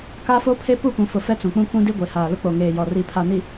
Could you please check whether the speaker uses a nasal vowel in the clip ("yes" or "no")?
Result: yes